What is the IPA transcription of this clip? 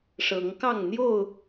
ʂ ɤ˨˦ ŋ k ɑ˥˨ ŋ n̪ j o˥˨ ʊ̯

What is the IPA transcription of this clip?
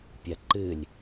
pʲ ɐ ǃ ɨ lʲ

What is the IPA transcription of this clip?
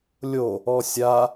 lʲ o | ɔ sʲ a

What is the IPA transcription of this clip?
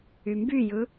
y m b y j ɯ

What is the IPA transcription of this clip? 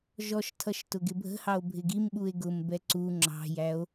ʒ ɔ ʃ tʰ ʌ ʃ t ʊ ɡ ɪ bʱ ə̤ h ɑ o̯ bʱ ɪ ɡ i m ɓ u e̯ ɡ ʊ m b ɛ ǀ u ŋ͡ǁ ɑ̤ j æ o̯

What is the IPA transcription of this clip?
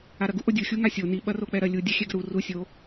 a ɾ ɐ ɡ u ʔ o dʲ u xʲ u ŋ a sʲ o n i ɓ ɐ r o k͡p ɛ ɾ ɐ lʲ u dʲ ɐ xʲ ɛ ɡ ɐ ɾ u r u sʲ o

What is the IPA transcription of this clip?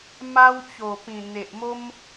m a˦ w t͡ɕ o˨˩ p ĩ˨˩ n̪ e˨ ʔ m o˦ m

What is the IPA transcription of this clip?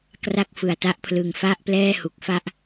k r a˥˩ k̚ f ɯ˨˩ a̯ t a˥˩ ʔ pʰ l ɯ˨˩ ŋ f a˥˩ ʔ p l ɛː˥˩ h u˨˩ k̚ f a˥˩ ʔ

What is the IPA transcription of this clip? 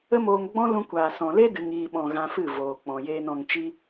ə˦ m oː˧ ŋ ɡ͡b ɔ̃˦ l ũ˧ kʷ aː˨ s ɔ̃˨ l e˦ d ɨ˨ ŋ iː˨ ɓ ɔ̃˨ ɣ ã˧ f ɨ˦˨ v oː˨ k͡p ɔ̃˨ j eː˨ n ɔ̃˨ ŋ t͡ʃ i˧

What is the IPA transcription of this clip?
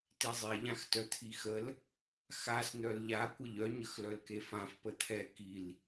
t i zˤ e ʎ ã x t œ t̪ʰ i x ə l | x a s n̪ œ l ʎ a kʷ ə ʎ œ ɲ ə x l œ l k e f ã f p ə t̪ʰ ɛ k i l

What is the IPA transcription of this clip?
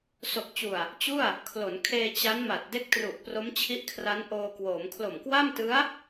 s o˨˩ k̚ t͡ɕ u˨˩ a̯ | t͡ɕ u˥˩ a̯ | kʰ l o˩˦ n kʰ eː˧ t͡ɕ a˦˥ n m a˨˩ t̚ d e˦˥ k̚ t r u˨˩ ʔ p r o˦˥ m t͡ɕʰ i˦˥ ʔ kʰ r a˦˥ n ʔ oː˧ k w oː˩˦ m kʰ l o˨˩ m k w a˥˩ m t ɯ˦˥ a̯

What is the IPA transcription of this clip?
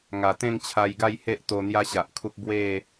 ŋ a˨˩ t̪ ẽ˥˧ ŋ t͡ɕʰ a˧ j ɡ a˥˧ j h e˦ ʔ t̪ o˧ n̪ j a˦ ɕ a˨ ʔ kʰ u˦ k̚ b w e˥˧

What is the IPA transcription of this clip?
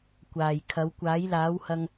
kʷ aː˨˩ j kʰ ɐ˨˥ w kʷ aː˨˥ j l aː˨˥ w h ɐ˧ ŋ

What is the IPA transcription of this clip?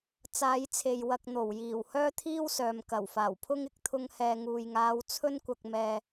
t͡s aː˨˧ j t͡sʰ e˨ j w ɐ˧ k̚ n̪ o˨˩ w j iː˨˩ w h œː˥ t̪ʰ iː˥ w s œː˨ m k ɐ˨˩ w f aː˨˩ w pʰ ʊ˥ ŋ ɪ˧ k̚ t̪ʰ ʊ˥ ŋ h ɛː˧ ŋ uː˨ j ŋ aː˨˧ w t͡sʰ ɵ˥ n kʷ ɐ˧ k̚ m ɛː˧

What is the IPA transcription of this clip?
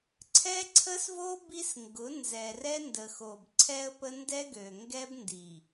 ǀʰ ɛ˦ ǀʰ ə˦ s v o˦ b i˦ s ŋ ɡ ʊ˨˦ n z ɛ˨ r ɛ˦ n d ə˨ x o˨ b ǀʰ ɛ˦ ə̯ p ə˦ n d ɛ˦ ɡ ø˨ ŋ ɡ ɛ˦ b n d i˨

